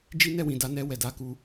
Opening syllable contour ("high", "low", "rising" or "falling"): high